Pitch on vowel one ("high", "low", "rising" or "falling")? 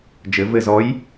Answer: rising